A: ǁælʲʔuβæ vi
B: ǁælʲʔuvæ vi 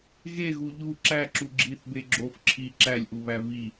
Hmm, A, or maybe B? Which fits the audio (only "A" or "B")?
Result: A